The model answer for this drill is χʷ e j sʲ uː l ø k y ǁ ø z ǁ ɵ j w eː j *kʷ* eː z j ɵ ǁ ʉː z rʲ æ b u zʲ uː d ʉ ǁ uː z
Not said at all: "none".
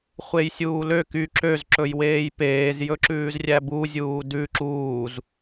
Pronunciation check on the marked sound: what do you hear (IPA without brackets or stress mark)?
p